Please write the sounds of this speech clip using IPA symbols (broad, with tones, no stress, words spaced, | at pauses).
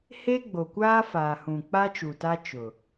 he˦ ɡ͡bo˨kʷaː˦faː˨hũ˨ k͡pa˦t͡ʃu˨ta˦ t͡ʃʊ˨